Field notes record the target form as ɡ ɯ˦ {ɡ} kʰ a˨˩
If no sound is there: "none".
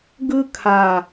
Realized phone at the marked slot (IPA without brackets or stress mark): none